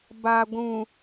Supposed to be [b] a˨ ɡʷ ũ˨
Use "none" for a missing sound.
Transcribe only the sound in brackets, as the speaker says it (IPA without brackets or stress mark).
b